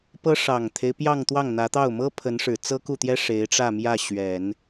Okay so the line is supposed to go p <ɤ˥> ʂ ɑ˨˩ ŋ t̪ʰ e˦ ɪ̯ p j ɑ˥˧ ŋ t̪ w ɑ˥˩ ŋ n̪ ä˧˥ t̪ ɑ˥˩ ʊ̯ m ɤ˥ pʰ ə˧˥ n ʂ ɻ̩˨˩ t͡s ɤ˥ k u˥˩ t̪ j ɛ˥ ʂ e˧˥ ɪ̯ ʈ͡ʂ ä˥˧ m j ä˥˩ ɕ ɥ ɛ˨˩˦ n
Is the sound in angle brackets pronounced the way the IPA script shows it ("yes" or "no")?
yes